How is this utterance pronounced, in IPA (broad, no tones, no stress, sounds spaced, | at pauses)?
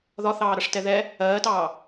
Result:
ð ɒ θ ɑː ɾ ʌ ʂ t ɛ ð ɛ | ɜː t ɑː